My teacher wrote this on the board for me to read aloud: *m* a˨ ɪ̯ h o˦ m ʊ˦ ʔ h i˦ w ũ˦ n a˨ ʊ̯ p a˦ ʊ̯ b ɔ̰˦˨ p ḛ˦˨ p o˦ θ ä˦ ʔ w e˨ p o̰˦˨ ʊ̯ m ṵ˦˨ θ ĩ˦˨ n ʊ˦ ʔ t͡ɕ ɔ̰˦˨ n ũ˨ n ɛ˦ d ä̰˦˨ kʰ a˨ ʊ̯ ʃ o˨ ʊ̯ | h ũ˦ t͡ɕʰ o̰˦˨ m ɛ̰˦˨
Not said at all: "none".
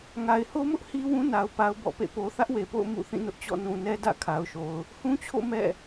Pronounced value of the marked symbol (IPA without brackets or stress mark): ŋ